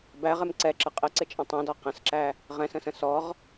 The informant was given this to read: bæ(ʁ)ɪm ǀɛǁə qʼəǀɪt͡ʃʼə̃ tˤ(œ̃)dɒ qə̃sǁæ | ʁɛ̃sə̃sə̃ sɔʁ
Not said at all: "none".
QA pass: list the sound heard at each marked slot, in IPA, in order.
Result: ʁ, ɛ̃

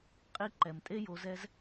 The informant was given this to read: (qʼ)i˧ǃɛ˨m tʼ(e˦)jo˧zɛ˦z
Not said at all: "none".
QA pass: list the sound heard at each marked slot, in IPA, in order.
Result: qʼ, e˦

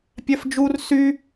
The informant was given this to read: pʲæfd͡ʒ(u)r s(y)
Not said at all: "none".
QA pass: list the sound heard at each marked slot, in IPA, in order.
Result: u, y

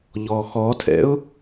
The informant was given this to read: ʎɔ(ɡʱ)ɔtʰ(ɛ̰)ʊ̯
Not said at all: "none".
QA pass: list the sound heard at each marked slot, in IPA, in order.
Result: x, ɛ̰

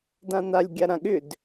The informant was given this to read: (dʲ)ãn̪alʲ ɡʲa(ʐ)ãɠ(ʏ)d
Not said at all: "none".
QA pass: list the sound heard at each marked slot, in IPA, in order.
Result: d, ɾ, ʏ

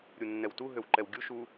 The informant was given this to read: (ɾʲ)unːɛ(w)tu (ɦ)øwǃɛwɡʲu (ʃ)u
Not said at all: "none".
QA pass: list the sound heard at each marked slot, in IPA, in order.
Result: ɾʲ, w, ɦ, ʃ

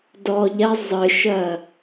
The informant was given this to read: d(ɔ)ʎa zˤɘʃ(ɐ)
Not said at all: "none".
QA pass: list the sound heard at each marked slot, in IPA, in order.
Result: ɔ, ɐ

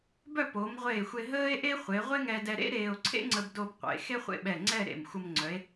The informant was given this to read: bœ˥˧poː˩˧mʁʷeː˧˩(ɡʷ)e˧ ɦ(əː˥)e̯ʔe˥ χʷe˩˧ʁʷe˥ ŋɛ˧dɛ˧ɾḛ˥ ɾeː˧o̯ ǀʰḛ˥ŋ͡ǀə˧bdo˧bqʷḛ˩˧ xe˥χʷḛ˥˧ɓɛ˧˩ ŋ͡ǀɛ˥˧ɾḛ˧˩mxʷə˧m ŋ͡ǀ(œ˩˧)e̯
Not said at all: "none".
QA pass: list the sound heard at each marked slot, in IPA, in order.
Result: xʷ, əː˥, œ˩˧

